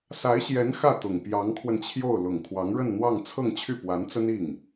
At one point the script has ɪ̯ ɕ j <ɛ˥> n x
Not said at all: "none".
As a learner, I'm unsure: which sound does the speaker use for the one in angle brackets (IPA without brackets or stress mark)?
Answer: ɛ˧˥